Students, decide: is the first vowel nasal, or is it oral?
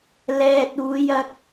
oral